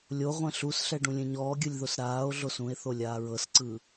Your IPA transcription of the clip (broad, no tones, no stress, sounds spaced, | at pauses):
lʲ o ʁʷ ɛ̃ ɬ u s ɬ ɛ ɖ ũ lʲ ẽ ɲ ɔː ɡʲ ɯ lʲ ð o s ɾ aː o̯ ɮ o s ũ e̯ θ o lʲ aː ɹ ɤ s ǀ ɯ